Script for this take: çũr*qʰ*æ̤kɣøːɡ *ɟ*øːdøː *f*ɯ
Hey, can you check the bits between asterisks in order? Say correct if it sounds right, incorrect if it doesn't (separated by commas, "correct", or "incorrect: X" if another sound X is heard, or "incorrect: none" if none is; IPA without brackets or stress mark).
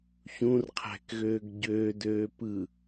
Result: correct, correct, incorrect: p